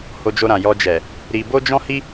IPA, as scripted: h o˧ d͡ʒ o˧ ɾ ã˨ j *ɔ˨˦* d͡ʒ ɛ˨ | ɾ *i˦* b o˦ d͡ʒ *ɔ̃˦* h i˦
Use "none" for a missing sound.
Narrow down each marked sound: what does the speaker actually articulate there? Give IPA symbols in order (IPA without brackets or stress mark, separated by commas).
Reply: ɔ˧, i˧, ɔ̃˦